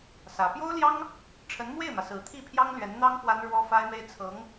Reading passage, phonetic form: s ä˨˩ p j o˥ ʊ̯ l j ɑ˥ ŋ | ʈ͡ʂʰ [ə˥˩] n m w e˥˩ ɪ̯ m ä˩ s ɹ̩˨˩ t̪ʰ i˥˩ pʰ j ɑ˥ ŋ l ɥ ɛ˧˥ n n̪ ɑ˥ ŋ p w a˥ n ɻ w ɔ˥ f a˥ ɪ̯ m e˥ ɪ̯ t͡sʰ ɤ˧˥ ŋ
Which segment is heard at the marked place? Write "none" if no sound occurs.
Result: ə˧˥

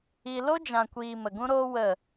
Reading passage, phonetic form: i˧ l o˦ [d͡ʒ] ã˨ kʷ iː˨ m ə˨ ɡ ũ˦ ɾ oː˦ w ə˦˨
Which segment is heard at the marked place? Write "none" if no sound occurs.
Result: d͡ʒ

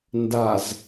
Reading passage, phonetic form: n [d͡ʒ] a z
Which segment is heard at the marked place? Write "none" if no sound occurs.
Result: d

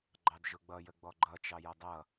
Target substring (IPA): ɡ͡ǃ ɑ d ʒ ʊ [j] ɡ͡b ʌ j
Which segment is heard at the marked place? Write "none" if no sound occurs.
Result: none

